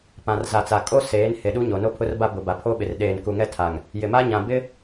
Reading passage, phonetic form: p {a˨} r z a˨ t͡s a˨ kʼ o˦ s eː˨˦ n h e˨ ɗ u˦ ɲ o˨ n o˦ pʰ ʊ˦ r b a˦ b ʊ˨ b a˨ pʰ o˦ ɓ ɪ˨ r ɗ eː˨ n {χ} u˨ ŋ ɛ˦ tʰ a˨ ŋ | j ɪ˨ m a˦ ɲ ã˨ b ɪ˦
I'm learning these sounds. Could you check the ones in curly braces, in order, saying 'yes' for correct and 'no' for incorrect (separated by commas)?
no, no